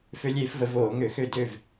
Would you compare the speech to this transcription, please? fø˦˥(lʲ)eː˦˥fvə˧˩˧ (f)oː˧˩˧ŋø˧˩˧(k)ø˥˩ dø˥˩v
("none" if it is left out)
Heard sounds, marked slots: lʲ, v, x

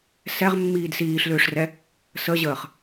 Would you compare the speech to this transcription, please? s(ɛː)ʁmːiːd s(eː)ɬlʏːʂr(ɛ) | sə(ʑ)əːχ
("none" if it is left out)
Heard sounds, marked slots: ɛ, iː, ɛ, ʑ

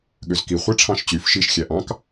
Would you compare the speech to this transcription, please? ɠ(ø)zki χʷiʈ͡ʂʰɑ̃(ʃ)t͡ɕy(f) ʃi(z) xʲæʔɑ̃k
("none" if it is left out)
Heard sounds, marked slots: ø, ʃ, f, ʃ

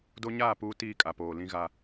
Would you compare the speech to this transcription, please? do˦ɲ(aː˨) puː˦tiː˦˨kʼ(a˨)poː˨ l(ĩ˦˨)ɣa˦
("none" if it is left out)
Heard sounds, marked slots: aː˦˨, a˨, ĩ˦

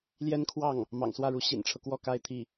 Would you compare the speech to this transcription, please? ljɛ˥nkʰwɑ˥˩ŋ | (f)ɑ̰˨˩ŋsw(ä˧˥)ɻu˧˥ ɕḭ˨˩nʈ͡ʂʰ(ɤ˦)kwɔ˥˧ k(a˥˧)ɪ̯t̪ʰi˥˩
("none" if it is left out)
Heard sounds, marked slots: m, ä˥˩, ɤ˦, a˥˧

